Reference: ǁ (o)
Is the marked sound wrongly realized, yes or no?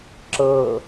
yes